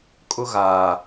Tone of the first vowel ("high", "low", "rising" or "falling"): high